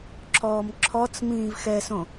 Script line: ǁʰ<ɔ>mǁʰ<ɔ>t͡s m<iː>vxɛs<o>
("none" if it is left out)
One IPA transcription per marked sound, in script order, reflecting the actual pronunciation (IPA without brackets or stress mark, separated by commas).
ɔː, ɔ, ĩː, õ